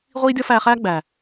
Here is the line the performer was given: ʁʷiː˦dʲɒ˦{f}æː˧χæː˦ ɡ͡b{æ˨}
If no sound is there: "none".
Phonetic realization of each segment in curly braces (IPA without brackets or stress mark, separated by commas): f, æ˨